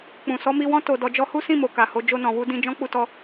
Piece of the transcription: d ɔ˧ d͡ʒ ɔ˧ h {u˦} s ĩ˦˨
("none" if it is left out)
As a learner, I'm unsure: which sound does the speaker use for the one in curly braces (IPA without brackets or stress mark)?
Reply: u˦